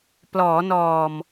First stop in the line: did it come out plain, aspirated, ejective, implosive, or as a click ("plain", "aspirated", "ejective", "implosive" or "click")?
plain